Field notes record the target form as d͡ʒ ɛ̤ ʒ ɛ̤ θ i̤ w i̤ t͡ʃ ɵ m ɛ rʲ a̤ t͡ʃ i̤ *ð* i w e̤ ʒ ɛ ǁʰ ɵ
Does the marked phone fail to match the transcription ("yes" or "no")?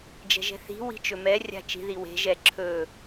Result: no